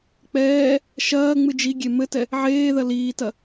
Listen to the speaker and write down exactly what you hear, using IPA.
k͡p ɛː | ʃ ɐː ŋ͡m ɨ d͡ʒ i ɡʲ e m ɘ t ɛ | ʕ eː ð ɐ l iː t ɐ

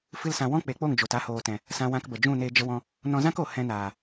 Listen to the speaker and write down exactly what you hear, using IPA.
f ɨ˦ l s ã˧ w ɔ̃˦ k͡p e˨˦ k͡p o˦˨ ŋ d͡ʒ o˨ t a˧ h oː˨ t ɛ̃˨ | s ã˧ w ã˧ k b ə˨ d͡ʒ ũ˦˨ n eː˧ d͡ʒ ə˧ w ɔ̃˧ | n ɔ̃˧ z ã˦ k o˨ h ɛ̃˧ n aː˨

